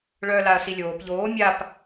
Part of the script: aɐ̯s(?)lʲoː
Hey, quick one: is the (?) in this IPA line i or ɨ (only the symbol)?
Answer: i